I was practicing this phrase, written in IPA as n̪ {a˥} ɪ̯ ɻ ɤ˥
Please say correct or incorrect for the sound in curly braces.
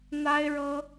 correct